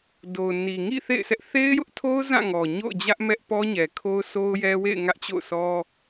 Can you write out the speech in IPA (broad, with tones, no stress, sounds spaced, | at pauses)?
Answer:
d o˨ ʊ̯ n i˨ ŋ ḭ˦˨ θ ḛ˦˨ ɪ̯ sʰ ɛ˦ ʔ θ e˦ ɪ̯ j ʊ˦ ʔ tʰ o˦ ʊ̯ z ã˦˨ ŋ ɔ˨ ɲ o̰˦˨ ʊ̯ d͡ʑ ä˦ ʔ m ɛ˦ ʔ p ɔ˦ ɲ ɛ˨ kʰ o˦ ʊ̯ sʰ o˦ ʊ̯ j ɛ˦ w ḛ˦˨ ɪ̯ ŋ ä˦ ʔ t͡ɕ o̰˦˨ ʊ̯ s ɔ˦